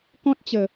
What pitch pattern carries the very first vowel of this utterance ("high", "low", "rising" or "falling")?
high